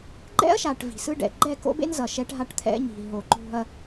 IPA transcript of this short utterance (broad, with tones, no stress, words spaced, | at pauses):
ɡ͡ǃɛ̰˦ɐ̯ʃa˨ʈ vi̤˨sɯ˦ɖɛ̰˨ ɡ͡ǃɛ˦˨ko̰˦bḛ˦n zʌ˨ʃɛ˦ʈ ɦa˦ʈt̪ʰɛ̰˦ɲi̤˨ ɦo˨ ǃo̤˦ɐ̯